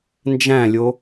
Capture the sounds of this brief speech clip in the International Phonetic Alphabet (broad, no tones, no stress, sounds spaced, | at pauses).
n d͡ʒ æ̃ lʲ o